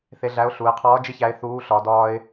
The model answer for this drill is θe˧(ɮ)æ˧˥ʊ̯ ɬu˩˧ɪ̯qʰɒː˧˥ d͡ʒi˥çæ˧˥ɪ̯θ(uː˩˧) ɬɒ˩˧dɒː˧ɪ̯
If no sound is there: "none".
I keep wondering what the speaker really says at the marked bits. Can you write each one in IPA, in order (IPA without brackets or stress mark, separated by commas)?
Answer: ɮ, uː˧˥